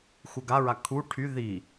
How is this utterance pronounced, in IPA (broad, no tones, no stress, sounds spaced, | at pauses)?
x u ɡ a ɹ a kʰ u ʈʰ y ð i